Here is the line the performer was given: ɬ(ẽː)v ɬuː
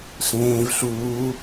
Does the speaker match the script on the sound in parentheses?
yes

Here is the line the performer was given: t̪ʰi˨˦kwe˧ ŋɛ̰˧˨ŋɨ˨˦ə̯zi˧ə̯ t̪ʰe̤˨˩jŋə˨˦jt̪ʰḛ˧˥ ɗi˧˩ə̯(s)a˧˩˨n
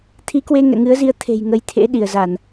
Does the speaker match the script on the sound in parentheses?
no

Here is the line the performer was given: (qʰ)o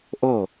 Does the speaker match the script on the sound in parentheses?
no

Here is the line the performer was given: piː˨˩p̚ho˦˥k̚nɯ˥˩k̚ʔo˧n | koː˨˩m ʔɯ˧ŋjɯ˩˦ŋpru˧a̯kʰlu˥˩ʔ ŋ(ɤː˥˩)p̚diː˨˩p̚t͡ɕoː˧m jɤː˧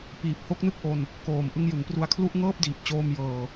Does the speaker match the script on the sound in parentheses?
yes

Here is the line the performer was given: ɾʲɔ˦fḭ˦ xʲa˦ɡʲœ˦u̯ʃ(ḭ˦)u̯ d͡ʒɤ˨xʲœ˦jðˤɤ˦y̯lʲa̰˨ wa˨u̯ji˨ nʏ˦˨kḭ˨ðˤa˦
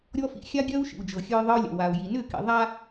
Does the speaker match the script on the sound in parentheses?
no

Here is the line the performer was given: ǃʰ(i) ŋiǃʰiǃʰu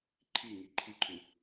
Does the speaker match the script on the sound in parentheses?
yes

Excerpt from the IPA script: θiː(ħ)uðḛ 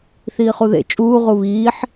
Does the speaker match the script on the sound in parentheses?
no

